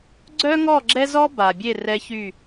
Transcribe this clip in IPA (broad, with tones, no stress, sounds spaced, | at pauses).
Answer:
ɡ͡ǀ œ˦ ŋ ɔ˦˨ ɡ͡ǁ ɛ˦ z ɔ˦ b a˨ bʲ e˦˨ r ɛ˧ ç y˦˨